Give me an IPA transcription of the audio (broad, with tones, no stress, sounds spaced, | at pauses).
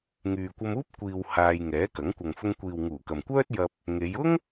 ŋ yː˨ kʷ ɐ˧ m uː˥ p̚ kʷ iː˨ w h aː˧ j ŋ ɛː˨˥ k ɐ˨˥ ŋ kʷ ɐ˨ ŋ f ʊ˧ ŋ kʷ iː˨ w ŋ uː˨˩ k ɐ˨ m kʷ œː˥ t̚ j ɐ˧ p̚ | ŋ e˨˧ j ʊ˥ ŋ